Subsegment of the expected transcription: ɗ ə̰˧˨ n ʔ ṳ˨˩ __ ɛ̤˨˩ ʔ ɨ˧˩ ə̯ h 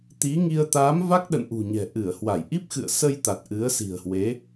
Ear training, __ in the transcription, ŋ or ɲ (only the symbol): ɲ